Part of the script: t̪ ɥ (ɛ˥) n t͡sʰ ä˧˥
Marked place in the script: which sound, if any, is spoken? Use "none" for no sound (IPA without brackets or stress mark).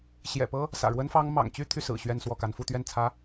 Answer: ɛ˥˩